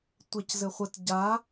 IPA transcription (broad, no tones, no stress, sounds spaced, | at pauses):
tʷ e c z ɘ χʷ ə t ɟ a